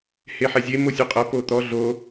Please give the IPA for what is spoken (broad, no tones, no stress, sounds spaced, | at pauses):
h e ħ ɛ zʲ e m o sʲ u qʼ ɐ p o t̪ ɔ ɮ o